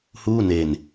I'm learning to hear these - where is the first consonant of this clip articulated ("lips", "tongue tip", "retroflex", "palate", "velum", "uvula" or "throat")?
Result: throat